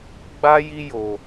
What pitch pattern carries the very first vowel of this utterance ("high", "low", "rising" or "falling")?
high